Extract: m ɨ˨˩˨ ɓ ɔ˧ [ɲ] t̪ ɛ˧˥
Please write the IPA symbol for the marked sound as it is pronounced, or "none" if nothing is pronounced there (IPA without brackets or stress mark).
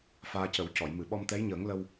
m